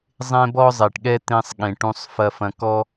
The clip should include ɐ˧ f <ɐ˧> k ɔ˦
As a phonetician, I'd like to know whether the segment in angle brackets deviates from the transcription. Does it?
yes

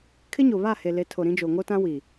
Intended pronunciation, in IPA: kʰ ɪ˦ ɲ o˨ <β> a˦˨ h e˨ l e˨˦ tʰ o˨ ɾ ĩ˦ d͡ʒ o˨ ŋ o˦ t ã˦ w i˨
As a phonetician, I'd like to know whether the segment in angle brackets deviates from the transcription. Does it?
no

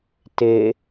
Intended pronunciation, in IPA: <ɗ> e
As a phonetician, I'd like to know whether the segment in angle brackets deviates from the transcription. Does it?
yes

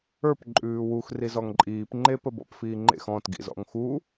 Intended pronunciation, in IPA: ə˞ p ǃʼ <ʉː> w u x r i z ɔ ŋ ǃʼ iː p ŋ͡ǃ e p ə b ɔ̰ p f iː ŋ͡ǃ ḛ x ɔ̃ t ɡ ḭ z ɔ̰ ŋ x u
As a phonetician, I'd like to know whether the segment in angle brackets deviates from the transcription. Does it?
no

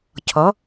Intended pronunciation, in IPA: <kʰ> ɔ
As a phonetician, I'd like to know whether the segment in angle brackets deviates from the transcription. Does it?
yes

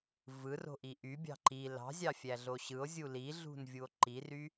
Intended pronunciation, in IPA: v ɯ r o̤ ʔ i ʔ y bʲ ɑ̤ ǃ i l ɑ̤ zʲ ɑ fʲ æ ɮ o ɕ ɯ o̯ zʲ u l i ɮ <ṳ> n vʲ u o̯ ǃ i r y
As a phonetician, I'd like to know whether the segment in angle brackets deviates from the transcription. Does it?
no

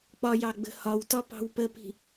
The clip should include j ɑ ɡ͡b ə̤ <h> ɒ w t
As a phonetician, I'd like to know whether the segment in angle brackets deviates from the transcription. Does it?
no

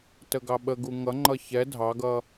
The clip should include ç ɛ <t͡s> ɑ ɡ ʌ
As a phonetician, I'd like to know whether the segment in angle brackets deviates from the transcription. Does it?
yes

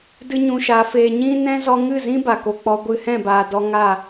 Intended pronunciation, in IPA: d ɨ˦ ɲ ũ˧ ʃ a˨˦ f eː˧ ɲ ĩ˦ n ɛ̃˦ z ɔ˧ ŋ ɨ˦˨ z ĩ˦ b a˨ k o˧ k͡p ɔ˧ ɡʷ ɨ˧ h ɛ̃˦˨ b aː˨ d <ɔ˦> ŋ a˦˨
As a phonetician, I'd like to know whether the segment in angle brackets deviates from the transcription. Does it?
yes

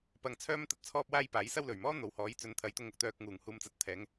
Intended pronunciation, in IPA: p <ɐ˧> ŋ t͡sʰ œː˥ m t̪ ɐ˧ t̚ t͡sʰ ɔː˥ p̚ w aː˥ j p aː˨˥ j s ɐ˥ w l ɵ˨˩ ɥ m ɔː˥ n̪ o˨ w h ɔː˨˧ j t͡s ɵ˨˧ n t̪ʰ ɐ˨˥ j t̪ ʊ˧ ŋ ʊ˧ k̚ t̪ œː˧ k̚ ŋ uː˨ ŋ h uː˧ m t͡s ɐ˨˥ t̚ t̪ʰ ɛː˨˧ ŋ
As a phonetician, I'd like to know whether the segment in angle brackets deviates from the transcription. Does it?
no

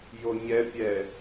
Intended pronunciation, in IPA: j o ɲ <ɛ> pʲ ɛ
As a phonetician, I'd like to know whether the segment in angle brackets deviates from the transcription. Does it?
no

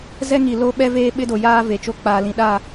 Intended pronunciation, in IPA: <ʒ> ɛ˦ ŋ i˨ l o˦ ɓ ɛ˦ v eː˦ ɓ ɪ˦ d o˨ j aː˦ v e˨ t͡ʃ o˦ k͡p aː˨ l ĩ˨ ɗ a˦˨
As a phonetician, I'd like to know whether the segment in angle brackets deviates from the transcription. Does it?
yes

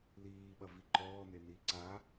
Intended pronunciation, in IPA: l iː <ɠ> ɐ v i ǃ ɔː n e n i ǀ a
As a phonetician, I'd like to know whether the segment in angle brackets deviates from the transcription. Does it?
yes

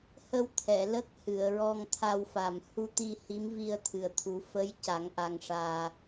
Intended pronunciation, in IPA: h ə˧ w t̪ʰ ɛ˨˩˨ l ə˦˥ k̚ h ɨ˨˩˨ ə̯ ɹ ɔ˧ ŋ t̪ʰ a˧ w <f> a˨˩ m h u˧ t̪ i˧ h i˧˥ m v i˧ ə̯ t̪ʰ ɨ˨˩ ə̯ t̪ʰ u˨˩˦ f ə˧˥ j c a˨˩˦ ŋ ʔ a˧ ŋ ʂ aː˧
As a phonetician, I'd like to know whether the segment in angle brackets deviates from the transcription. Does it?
no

